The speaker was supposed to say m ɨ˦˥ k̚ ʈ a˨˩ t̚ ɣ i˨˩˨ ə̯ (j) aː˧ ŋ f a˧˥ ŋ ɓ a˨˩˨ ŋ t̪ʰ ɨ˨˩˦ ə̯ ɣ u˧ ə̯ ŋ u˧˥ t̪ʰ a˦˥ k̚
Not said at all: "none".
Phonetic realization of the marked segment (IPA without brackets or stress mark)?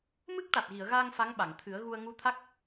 ɣ